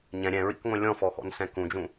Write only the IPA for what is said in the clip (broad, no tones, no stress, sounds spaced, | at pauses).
ɲ ɛ̃ ɾʲ ɛ̃ ɹ ḭ k ŋʷ ɛ̃ lʲ ɔ̃ f ɔ x ɔ̰ n s ɛ̃ k ũ d͡ʒ ũ